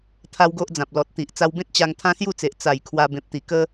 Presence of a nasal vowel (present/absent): present